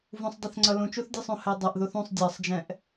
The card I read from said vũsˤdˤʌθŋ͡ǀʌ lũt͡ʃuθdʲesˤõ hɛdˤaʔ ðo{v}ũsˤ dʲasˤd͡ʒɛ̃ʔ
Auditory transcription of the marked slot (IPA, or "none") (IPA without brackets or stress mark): θ